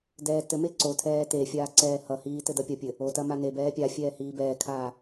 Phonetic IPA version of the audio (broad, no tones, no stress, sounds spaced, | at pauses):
d ɛː t ɘ m e ǀ o tʰ ɛː t e fʲ aː ǀ ɛː h ʌ h iː t ɘ d ʌ pʲ ɐ pʲ ɘ | o t ɐ m a n e b ɛː pʲ a fʲ ɛː h iː b ɛː kʰ aː